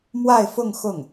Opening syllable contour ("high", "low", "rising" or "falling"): falling